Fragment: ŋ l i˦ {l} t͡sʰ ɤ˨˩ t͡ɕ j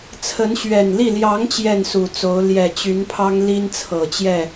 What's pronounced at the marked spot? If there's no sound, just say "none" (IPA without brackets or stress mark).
n